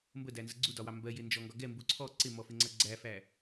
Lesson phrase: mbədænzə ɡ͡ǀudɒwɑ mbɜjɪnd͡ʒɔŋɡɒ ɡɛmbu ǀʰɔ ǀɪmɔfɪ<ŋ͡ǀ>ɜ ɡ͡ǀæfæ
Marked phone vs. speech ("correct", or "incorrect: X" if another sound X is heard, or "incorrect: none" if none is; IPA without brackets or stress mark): correct